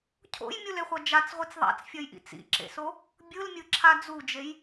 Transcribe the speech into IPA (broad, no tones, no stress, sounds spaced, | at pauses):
cʰ o̰ j mʲ u l e χʷ ʌ d͡ʒ a t͡s ʁʷ i t͡s ðˤ a̰ t͡s fʲ ʌ j ʔ ḭ t͡s ḭ ǁ ḛ s o | bʲ ɯ l mʲ ɯ ǁʰ a d͡z u d͡ʒ e j